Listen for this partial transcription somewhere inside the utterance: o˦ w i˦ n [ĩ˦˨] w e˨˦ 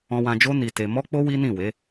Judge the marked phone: correct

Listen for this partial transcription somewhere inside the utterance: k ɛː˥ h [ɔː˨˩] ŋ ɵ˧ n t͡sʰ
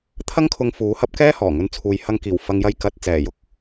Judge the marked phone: correct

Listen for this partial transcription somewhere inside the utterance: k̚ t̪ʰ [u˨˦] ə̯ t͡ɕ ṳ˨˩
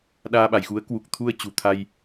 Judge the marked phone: incorrect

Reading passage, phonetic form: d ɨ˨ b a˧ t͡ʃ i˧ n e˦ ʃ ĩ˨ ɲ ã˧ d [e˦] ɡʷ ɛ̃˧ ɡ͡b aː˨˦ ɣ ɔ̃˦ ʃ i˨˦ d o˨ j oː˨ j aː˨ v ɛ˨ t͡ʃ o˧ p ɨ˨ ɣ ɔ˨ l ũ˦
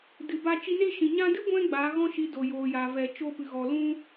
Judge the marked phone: incorrect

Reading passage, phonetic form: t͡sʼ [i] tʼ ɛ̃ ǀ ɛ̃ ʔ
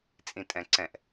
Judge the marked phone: incorrect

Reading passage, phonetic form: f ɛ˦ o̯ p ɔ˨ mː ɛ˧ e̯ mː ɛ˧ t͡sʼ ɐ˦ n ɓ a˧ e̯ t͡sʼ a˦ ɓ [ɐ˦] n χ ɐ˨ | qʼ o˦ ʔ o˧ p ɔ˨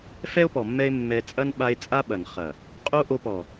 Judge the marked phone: incorrect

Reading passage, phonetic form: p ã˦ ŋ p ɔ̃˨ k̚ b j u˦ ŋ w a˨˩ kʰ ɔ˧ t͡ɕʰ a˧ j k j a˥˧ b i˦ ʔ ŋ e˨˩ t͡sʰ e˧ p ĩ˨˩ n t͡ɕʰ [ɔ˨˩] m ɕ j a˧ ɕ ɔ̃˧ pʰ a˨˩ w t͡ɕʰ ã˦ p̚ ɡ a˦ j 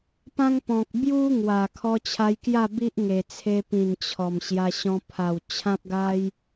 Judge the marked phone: correct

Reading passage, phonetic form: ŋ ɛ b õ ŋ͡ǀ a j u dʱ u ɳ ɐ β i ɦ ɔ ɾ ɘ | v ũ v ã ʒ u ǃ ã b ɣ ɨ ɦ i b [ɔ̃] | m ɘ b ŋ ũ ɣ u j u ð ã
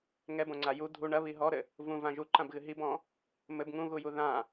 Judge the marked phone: correct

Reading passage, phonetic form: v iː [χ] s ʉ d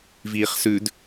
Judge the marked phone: correct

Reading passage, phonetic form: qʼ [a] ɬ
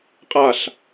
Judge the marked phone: correct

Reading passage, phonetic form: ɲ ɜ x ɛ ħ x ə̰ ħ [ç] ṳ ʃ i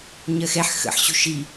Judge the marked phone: incorrect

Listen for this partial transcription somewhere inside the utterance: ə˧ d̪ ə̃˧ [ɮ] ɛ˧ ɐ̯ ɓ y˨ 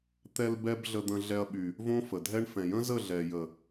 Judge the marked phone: correct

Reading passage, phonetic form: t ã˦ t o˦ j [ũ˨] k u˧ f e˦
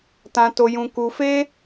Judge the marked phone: incorrect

